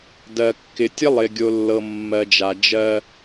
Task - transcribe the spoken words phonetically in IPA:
d ɜ˨ kː ɪ˨ tʲ ə˦ lˠ ɪ˨ ɡʲ o˨ lː ɤ˨ mː ɜ˨ d͡ʒ a˨ d͡ʒ ɜ˦

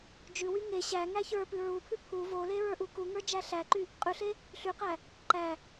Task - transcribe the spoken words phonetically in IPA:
d͡ʒ ʉ w y ŋ e ɕ æ ŋ æ ç ə˞ p ʉ ɹ u pʰ ʉ pʰ u v o l e ɹ ə˞ ʔ u k u ŋ ə˞ d͡ʒ æ ɬ æ ǃ y | qʼ ʉ ɬ e | ɬ y q æ | ǃ æ

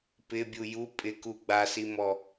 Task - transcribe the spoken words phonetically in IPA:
p ɪ bʲ u j u pʼ ɪ k u ɡ͡b a s i m ɔ

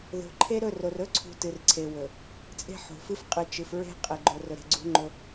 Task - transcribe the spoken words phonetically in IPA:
ð o̤˨ ǃʰ e˦ ɾ ɵ˦˨ r o˨ r ɵ˦ ǀʰ ṳ˨ t ɨ˨ r ǀʰ e˨ w ɵ˨ | t͡sʼ e̤˦ ħ o̤˨ f ɨ˦ f qʼ ɨ˨ t͡ʃ ɨ˨ f ɹ e̤˦ qʼ e˨ ɡ͡ǃ o˨ r ɵ˨ ɾ e̤˨ ɡ͡ǀ ṳ˦ ŋ͡ǃ ɵ˦

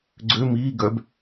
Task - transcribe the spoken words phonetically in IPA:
ɡ͡ǀ ø m iː ɡ œ b

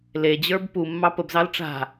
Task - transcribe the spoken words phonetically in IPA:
l e d͡ʑ ə˞ b p u mː ɑ p ə b z ɑ l ʈ͡ʂ a̤

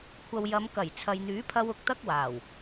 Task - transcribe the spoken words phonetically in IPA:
kʷʰ ɐ˨ w j ɐ˨˧ m k ɐ˨˩ j t͡sʰ ɐ˨ j n̪ yː˨˥ pʰ ɐ˧ w ʊ˨ k̚ t̪ ɐ˥ k̚ w aː˨˩ w

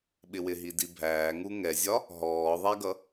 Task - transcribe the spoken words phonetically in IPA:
ɓ ɪ w ɪ ɦ i d i bʱ æː ŋ u ŋ ɛ zʲ ɒ | ɦ ɔː ðˤ æ ɡ ʌ

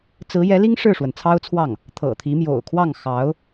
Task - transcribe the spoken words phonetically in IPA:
t͡s ɹ̩˧˥ j ɛ˧˥ l i˥ ŋ ʂ ɻ̩˥˩ ʂ w ə˩ n t͡sʰ ɑ˥ ʊ̯ t͡sʰ w ɑ˥˩ ŋ | t̪ʰ ɤ̰˨˩ t̪ʰ i˧˥ m j o̰˨˩ ʊ̯ kʰ w ɑ˥˩ ŋ x ɑ˧˥ ʊ̯

